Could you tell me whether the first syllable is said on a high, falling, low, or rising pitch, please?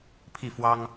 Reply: falling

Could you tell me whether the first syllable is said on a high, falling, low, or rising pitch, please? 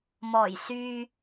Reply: low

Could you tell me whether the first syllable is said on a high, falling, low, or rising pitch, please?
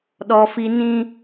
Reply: high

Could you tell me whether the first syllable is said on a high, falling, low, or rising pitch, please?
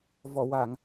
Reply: low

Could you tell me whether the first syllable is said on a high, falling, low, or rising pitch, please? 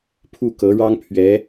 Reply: falling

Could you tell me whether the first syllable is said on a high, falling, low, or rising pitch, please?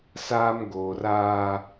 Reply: high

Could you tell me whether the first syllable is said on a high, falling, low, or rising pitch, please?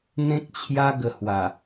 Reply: high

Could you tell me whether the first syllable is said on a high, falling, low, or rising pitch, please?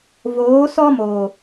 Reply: rising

